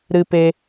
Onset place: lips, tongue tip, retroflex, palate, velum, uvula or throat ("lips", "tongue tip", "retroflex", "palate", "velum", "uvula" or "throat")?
tongue tip